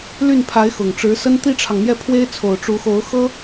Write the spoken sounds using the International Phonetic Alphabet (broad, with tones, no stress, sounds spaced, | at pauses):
l y˥˩ n pʰ a˧˥ ɪ̯ x ʊ˨˩ ŋ ʈ͡ʂ ɻ̩˧˥ s ə˥ n t̪ i˥ ʈ͡ʂʰ ɑ˨ ŋ n̪ j ɛ˥˩ pʰ w e˥ ɪ̯ t͡sʰ o˨˩ ʊ̯ ʈ͡ʂ u˧˥ x o˧˥ ʊ̯ x ɤ˥